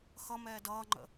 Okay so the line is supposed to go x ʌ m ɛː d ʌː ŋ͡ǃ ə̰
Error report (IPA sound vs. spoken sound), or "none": none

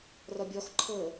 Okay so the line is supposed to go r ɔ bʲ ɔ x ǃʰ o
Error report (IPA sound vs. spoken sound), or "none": o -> ɤ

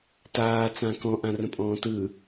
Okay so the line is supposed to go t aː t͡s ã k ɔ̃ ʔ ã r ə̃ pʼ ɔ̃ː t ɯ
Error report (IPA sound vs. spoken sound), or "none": none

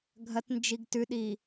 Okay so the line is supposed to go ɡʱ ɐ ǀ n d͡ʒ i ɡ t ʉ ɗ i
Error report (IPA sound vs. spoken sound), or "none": ǀ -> t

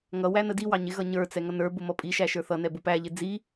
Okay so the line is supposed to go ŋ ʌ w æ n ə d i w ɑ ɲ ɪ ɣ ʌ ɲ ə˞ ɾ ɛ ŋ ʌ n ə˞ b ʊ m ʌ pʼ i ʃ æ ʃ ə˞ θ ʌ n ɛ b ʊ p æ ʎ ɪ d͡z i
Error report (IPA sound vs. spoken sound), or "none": ɾ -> t͡s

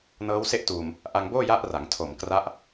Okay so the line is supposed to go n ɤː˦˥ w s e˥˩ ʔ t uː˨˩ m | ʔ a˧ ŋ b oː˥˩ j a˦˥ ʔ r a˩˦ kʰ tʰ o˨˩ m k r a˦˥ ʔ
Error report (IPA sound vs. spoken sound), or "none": kʰ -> ŋ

